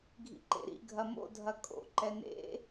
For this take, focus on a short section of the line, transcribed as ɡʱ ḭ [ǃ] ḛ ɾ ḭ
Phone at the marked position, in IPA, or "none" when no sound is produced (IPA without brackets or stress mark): ǃ